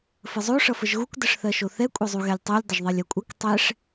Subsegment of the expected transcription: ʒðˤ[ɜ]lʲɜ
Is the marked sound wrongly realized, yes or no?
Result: yes